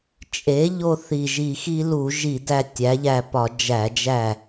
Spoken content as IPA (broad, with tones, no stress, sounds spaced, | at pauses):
t͡ʃʼ e˩˥ ʎ o˧ θ i˨˩ ʒ i˧˩˧ x i˧ l u˧˩˧ ʒ i˧˩˧ d æ˧ tʲ æ˩˥ ʎ æ˧ p ɒ˧˩˧ d͡ʒ æ˧˩˧ d͡ʒ æ˥˩